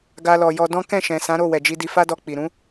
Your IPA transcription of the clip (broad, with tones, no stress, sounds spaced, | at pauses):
ɡ a˧ l ɔ˨ j ɔ˧ d ɔ̃˦ k ɛ̃˦˨ ʃ ɛ̃˨ s ã˨˦ ɾ o˦˨ w ɛ˨ d͡ʒ i˧ d i˧ f a˦ d ɔ˧ k͡p i˨ ɾ ũ˨˦